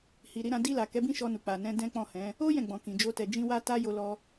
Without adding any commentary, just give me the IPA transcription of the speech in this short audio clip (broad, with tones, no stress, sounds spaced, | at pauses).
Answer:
h i˨ ɾ i˧ ɾ ã˧ d i˧ l a˨ k ɛ˨˦ b ĩ˦ ʃ ɔ˧ n u˨ k͡p a˨ n ɛ̃˧ d ɛ̃˦ k͡p ɔ̃˦˨ h ɛ̃˨˦ | o˦ j ɛ̃˦˨ ɡ͡b ɔ̃˨ k ĩ˨ d͡ʒ o˧ t ɛ˨ d͡ʒ ĩ˧ w a˦ t a˦ j o˧ l ɔ˧